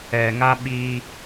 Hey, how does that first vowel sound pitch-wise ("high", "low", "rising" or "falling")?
low